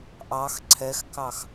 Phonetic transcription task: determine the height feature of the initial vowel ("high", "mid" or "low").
low